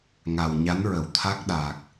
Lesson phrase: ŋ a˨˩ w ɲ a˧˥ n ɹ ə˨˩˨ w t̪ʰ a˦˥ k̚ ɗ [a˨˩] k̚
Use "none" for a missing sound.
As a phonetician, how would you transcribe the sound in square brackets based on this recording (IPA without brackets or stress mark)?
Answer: a˨˩